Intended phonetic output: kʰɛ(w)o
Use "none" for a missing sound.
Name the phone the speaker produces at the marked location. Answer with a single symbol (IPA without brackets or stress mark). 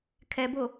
b